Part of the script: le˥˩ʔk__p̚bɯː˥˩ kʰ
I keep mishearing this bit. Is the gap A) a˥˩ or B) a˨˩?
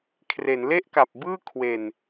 B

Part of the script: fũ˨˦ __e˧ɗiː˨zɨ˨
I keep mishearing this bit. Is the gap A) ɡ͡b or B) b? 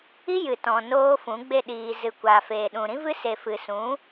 A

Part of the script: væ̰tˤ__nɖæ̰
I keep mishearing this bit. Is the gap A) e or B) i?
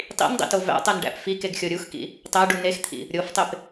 A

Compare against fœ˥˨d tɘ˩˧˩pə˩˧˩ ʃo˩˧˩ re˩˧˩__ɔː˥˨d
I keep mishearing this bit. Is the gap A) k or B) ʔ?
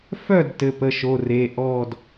B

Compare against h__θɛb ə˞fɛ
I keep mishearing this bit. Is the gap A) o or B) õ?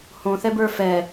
B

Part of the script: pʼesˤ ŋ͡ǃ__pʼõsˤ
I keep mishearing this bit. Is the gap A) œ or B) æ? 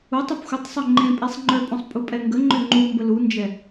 A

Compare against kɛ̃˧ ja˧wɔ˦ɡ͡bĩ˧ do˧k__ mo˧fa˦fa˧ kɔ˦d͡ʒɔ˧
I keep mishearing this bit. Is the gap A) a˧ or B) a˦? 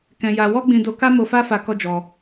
B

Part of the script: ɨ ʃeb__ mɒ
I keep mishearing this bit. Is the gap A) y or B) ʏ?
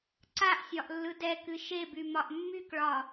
A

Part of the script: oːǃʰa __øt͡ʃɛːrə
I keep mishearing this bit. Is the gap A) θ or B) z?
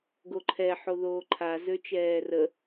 B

